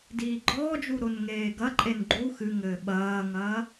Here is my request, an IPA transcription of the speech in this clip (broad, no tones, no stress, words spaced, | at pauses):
diːɡ͡ǃɔːd͡ʒu ɾonŋeːɡɐǃʼen ɡ͡ǃu xɨŋɘː ɓɐːŋɐː